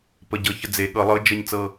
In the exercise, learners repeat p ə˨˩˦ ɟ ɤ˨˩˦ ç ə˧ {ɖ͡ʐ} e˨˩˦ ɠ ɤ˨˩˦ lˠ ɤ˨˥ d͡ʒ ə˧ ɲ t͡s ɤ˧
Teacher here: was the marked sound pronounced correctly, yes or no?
no